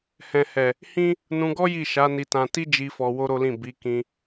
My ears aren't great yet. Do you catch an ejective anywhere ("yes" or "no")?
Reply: no